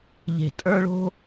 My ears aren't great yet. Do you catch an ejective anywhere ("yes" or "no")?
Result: yes